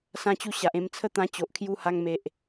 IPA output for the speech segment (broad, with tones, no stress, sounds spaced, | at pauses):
s ã˥˧ t͡ɕ u˥˧ ɕ a˨ ʔ ẽ˧ m t͡sʰ ə˥˧ t̪ ã˧ t͡ɕ o˨ ʔ kʰ j u˧ h a˧ ŋ m e˨ ʔ